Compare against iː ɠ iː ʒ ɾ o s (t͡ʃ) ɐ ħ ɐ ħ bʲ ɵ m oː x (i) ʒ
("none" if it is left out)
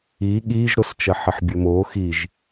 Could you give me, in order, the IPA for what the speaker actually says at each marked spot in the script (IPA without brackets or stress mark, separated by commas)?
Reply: t͡ʃ, i